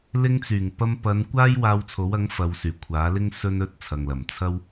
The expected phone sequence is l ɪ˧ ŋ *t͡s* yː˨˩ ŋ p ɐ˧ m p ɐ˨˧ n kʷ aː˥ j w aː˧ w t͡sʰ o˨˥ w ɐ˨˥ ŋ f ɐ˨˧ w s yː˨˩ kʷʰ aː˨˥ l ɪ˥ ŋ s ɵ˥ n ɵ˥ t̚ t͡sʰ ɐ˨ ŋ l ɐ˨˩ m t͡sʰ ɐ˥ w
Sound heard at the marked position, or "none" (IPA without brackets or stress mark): t͡s